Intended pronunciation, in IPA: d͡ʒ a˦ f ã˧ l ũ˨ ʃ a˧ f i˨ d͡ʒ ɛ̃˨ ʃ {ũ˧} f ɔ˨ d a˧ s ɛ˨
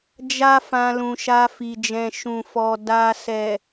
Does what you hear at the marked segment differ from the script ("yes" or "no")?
yes